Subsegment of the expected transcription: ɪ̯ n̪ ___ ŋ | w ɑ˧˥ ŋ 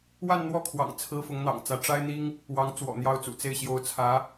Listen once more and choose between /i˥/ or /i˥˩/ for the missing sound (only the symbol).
i˥